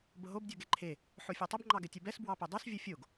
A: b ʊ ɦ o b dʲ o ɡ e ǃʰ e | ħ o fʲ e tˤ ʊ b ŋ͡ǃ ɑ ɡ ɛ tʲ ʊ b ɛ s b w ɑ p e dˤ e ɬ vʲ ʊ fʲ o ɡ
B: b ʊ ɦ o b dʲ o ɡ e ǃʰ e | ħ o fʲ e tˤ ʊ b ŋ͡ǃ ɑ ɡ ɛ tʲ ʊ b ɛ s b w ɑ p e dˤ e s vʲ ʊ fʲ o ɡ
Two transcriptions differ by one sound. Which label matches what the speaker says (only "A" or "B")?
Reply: B